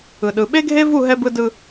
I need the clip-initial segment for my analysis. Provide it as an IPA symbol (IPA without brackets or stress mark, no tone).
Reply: ɯ